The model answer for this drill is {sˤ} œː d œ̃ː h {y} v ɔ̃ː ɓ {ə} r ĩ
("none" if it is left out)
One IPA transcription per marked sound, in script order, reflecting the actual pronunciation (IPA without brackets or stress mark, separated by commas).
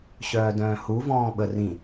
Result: ɕ, u, ə